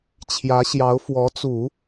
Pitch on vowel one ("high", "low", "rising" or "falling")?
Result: rising